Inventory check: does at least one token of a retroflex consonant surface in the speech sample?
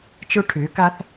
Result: yes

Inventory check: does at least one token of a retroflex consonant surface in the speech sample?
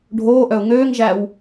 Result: yes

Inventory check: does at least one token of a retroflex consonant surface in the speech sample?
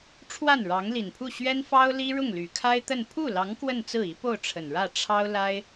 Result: yes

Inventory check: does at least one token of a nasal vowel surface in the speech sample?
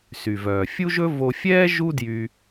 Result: no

